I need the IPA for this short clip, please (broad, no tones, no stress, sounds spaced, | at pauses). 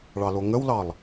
ɭ ɑ l o ŋ ə w l ɑ lˠ